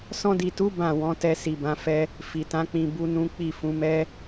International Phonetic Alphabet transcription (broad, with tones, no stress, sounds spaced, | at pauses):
s ɔ̃˧ d i˨ t u˨˦ b ã˦˨ w ɔ̃˨˦ t ɛ˧ s i˨ b ã˨˦ f ɛ˦ | f i˨ t ã˨˦ k͡p ĩ˧ b u˦ n ũ˦ k͡p i˦˨ f ũ˨˦ m ɛ˦